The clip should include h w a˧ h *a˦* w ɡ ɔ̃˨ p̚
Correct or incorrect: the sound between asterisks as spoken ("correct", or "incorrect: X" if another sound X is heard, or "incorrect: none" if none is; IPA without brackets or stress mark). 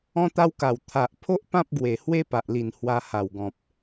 incorrect: a˨˩